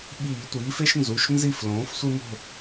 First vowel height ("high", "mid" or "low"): high